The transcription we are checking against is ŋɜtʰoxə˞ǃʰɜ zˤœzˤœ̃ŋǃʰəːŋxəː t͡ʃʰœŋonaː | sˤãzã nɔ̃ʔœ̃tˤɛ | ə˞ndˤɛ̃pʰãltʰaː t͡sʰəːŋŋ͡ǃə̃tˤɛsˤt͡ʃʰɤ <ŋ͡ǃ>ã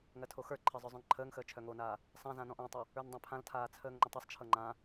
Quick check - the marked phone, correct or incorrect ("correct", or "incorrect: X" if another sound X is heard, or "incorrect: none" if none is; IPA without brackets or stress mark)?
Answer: correct